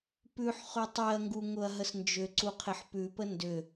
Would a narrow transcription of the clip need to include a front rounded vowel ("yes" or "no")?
yes